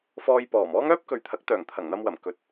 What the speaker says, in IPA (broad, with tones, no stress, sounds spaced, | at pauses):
f ɔː˧ j p ɔː˨˩ m ɔː˥ ŋ œː˥ p̚ k ɵ˨ ɥ t̪ʰ ɐ˨˥ k̚ t̪ œː˨˩ ŋ t̪ʰ ɐ˨˩ ŋ n̪ ɐ˧ m w ɐ˨˩ m k ɵ˨ t̚